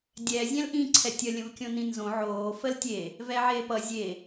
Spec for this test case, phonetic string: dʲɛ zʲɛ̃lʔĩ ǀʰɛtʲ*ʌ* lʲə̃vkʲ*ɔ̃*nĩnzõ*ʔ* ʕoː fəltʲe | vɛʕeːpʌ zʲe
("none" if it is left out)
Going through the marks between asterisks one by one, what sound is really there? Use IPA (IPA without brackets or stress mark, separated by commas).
ʌ, õ, none